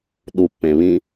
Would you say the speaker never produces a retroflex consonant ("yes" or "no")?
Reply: yes